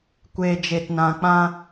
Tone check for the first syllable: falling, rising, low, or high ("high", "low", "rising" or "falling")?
low